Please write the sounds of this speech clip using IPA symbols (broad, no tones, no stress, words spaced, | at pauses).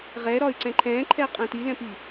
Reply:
ʁɛɾɒy̯ ǀɛ̃ǃʰɛ̃ǃʰɛ qʼɛ̃tilɛ̃pi